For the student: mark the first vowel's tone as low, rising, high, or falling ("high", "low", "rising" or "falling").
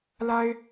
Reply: high